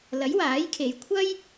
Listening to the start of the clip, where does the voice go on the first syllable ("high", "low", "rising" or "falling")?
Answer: rising